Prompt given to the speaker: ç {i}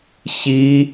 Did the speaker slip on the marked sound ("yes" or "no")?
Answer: no